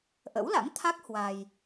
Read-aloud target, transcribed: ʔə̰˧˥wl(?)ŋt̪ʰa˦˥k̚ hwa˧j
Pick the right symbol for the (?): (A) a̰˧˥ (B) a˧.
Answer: A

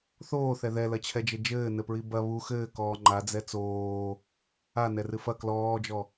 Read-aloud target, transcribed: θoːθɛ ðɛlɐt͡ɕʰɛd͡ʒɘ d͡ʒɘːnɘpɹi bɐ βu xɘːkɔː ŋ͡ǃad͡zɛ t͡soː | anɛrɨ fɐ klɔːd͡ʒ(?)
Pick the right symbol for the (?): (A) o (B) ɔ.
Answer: B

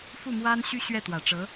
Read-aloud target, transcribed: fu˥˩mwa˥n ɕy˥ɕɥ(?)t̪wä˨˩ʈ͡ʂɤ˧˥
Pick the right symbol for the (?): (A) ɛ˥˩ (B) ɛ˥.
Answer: A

